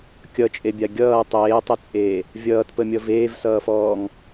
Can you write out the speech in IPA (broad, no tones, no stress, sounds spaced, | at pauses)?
kʲ ʌ t͡ʃʼ e bʲ a ɡʲ ʌː tˤ eː tˤ ɘ t͡sʼ eː | vʲ ʌː t p ə mʲ ʌ v eː v s ʌː f ɔː ŋ